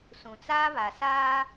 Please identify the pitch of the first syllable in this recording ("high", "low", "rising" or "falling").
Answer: low